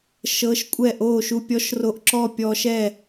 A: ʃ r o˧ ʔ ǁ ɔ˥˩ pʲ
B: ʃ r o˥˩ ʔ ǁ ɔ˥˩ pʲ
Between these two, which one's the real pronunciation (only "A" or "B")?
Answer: A